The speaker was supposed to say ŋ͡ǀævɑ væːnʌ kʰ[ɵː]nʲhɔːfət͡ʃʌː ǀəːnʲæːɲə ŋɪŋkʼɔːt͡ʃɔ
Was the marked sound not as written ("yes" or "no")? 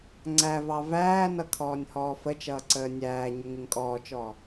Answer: yes